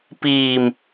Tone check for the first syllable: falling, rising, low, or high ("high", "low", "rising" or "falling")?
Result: low